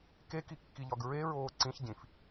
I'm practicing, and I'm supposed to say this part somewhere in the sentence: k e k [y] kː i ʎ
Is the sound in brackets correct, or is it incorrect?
incorrect